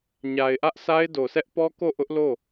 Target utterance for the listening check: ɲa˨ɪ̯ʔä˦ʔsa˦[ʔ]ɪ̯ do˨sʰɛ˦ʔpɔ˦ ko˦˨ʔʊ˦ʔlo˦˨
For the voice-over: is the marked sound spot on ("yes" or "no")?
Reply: no